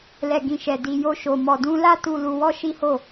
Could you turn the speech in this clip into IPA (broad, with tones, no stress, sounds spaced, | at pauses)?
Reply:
l ɛ˨ ɡ ĩ˨ ʃ ɛ˨ d i˧ j o˦ ʃ o˧ m ɔ˨ d ũ˧ l a˦ t u˦ l u˧ w ɔ˦ ʃ i˦ h o˦˨